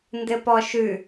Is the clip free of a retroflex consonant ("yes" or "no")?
yes